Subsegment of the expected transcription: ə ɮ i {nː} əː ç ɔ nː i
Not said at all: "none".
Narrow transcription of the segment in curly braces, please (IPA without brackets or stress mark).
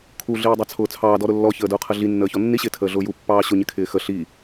nː